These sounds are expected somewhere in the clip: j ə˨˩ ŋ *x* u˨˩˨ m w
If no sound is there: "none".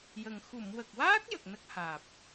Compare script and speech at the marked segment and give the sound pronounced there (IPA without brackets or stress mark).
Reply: x